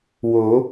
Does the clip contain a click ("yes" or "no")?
no